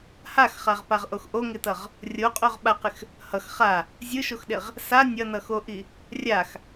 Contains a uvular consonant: yes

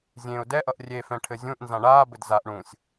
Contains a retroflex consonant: yes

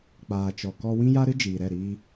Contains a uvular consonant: no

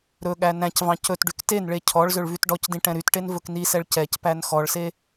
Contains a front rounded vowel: yes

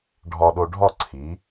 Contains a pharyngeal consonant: no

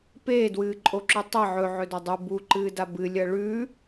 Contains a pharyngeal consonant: yes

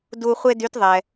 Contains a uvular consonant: yes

